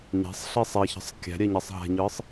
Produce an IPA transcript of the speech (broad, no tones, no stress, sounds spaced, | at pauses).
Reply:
ɲ æ̤ sˤ ɬ i sˤ ɛ ç ə̤ sˤ kʲ æ̤ ɾʲ ɛ ɲ ɛ sˤ ɦ æ̤ ɲ ɯ sˤ